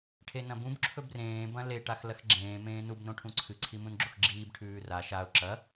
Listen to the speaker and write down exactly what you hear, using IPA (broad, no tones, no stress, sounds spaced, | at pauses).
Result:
ʈʰ e n ɐ̃ b ũ b ǁʰ ɵ b r ẽː b ɐ̃ l e ʈ a x l ɐ x ɡ͡ǁ ẽː m ẽː n u b n õ ʈʰ ũ ǀʰ ɨ ǀʰ i m ũ n ɡ͡ǁ o x ɡ͡ǁ iː b ʈʰ ʉː r a ʃ a ʊ̯ ǁ ɐ